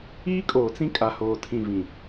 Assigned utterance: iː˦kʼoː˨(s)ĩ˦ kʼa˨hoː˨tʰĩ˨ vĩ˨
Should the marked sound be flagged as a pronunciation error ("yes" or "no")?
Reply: yes